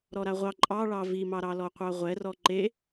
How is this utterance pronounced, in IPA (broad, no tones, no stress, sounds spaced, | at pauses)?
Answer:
ɾ ɔ ɾ a ʁʷ ɑ ǃʼ ɑ ɭ ɑ v i m ɑ ɾ ɑ l ɔ qʷ ɑ ʁʷ ɛ r ɔ ǃ e